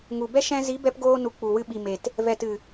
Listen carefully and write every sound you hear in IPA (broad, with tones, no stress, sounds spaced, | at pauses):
ŋ u˨ b ɛ˦ ʃ ɛ̃˧ z i˨˦ b ɛ˧ p ɡ oː˧ n u˨ k͡p u˨ w ɨ˧ ɓ i˨ m e˨ t | v ɛ˨ t ɨ˨